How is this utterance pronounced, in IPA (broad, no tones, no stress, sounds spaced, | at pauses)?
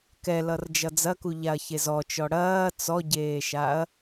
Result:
k ɛ l ʌ r d͡ʒ ʌ d͡z ɐ k u ʎ a ɐ̯ ç e z ɔ t͡ʃ ɔ ɽ ɐː t͡s ɔ ɟ eː ʃ a ɐ̯